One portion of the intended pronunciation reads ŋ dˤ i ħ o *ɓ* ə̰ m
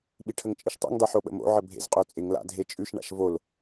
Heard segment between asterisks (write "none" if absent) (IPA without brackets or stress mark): ɓ